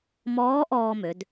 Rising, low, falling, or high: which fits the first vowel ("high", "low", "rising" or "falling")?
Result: rising